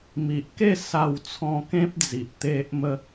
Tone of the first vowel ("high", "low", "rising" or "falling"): low